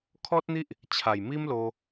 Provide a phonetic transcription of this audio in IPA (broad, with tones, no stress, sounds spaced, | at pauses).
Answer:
kʰ ɔ˦ t̚ n̪ i˦ ʔ | t͡ɕʰ a˨˩ j m i˦ m l o˧